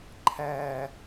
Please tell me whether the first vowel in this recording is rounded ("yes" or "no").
no